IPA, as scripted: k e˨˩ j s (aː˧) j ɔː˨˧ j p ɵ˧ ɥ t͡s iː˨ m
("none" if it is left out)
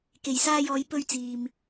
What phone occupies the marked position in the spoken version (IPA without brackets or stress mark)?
aː˧